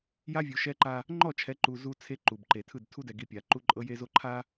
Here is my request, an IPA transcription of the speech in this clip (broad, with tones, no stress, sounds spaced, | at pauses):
j a˦ vʲ u˨ ʃ ɛ˦ ǃ a˦ | ŋ͡ǃ ɔ˦˨ t͡ʃʰ ɛ˨˦ ǃ u˨ z u˨ t͡sʰ e˦ ǃ u˨ b ǃ e˨ tʰ ɯ˦˨ d tʰ u˦ d ɛ˨ ɡ i˨ pʲ a˨ ǃ u˦ ǃʼ ɤ˦ j e˦ z o˦ ǃʰ a˦